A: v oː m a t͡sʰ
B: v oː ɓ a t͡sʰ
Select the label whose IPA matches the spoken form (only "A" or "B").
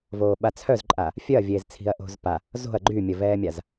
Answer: B